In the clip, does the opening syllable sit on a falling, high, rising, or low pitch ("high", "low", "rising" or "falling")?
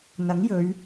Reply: rising